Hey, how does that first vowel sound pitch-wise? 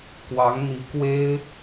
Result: rising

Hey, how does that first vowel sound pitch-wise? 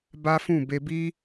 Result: high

